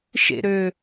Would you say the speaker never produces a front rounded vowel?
no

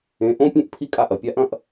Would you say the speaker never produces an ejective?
no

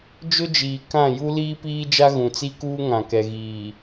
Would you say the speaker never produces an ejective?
yes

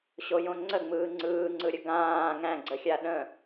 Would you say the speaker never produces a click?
no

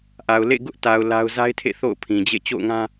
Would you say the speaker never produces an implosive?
yes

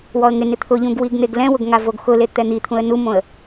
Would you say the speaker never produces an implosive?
yes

